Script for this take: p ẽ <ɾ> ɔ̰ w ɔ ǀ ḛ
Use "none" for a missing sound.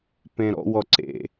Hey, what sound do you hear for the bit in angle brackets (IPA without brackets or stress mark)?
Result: ɾ